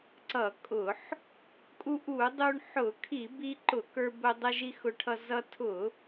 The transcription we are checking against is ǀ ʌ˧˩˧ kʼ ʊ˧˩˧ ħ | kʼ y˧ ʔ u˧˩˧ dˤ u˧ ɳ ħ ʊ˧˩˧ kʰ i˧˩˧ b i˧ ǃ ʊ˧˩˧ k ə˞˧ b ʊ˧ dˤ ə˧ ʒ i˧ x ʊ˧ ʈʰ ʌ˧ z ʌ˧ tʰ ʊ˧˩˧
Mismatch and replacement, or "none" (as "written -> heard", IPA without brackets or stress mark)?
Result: y˧ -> u˧